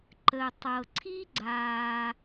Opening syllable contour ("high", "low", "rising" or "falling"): low